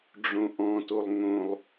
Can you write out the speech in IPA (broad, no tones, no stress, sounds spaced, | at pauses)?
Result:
ɖ͡ʐ õ ʔ ɔ̃ t o lˠ ŋ õ lˠ